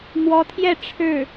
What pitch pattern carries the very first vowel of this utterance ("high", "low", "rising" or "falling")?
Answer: rising